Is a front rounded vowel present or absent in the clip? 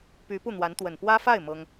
present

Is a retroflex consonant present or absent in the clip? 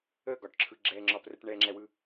present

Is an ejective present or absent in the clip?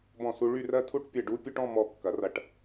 absent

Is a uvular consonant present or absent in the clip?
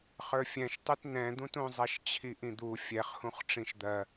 present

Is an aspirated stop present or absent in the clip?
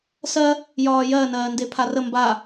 present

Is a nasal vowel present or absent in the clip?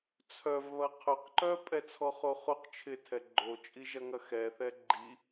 absent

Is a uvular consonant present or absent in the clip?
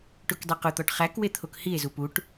present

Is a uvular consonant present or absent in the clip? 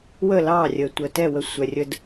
absent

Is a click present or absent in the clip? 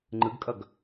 present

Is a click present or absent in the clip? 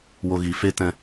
absent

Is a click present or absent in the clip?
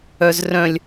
absent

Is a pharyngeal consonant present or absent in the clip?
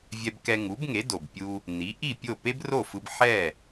present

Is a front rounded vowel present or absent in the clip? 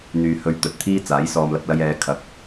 present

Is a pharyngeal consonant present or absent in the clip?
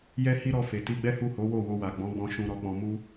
absent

